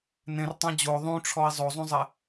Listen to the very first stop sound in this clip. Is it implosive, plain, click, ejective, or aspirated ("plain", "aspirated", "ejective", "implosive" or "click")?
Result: plain